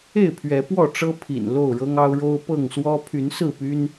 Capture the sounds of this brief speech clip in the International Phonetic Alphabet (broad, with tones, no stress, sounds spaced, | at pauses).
e˥˨ ɪ̯ pʰ ɥ ɛ˨˦ p w ɔ˥˨ ʈ͡ʂ ɤ˦ pʰ ḭ˨˩ n l o˥˨ ʊ̯ ɻ ɤ˦ ŋ ɑ˦ ʊ̯ ɻ o˦ ʊ̯ p ɤ˥˨ ŋ s w ɔ˦ pʰ y˨˦ n s ɹ̩˥˨ p y˦ n